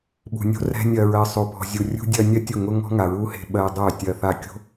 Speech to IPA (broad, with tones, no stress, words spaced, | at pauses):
ɓṳ˨nʲo̤˦ rɛ̤˧ nʲɜ˨ɹɜ˨ sˤo˨ pɔ̤˨zʲu˨rʲṳ˧ dʲɜ˧nʲɜ˦ tʲʊ˦˨ŋʊ˦ŋɔ̤˦ŋa˨ ɹu˦he̤˧ ɓɜ˧ dˤœ˦˨tʲɜ˧ θa˧kʲo̤˦